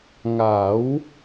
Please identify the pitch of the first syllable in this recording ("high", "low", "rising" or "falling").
rising